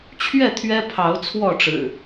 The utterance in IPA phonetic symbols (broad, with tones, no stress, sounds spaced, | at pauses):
t͡ɕʰ ɥ ɛ˥˨ t̪ʰ ɥ ɛ˦ pʰ ɑ˨˦ ʊ̯ t͡sʰ w ɔ˥˨ ʈ͡ʂ ɻ̩˨˩